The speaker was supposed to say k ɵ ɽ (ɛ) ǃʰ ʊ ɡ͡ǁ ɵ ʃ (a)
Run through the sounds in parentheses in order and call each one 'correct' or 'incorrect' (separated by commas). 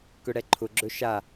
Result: correct, correct